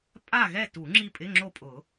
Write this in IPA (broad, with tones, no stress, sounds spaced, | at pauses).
pʼ a˦˨ ɣ ɛ˦˨ t u˨˩˦ ŋ͡ǁ i˦˨ pʼ ɪ˧˥˧ ŋ͡ǁ o˦˨ pʼ ʊ˨˩˦